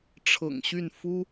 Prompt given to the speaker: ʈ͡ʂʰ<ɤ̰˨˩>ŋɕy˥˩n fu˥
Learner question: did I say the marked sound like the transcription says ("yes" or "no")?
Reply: yes